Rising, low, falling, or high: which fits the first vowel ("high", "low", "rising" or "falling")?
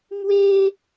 high